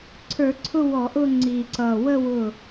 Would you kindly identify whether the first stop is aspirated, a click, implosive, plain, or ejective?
click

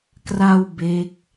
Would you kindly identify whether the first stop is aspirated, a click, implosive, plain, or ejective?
plain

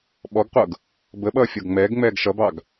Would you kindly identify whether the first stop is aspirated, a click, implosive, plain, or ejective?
implosive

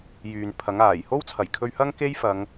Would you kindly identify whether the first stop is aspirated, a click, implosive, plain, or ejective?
aspirated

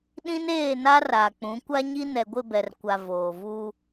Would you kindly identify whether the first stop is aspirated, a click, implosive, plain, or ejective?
implosive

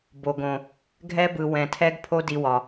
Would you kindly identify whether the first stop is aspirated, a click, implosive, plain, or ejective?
plain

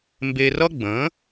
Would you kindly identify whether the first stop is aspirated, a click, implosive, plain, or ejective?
plain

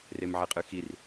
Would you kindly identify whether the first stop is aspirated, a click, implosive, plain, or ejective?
ejective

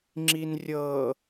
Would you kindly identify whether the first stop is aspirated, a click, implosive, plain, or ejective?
click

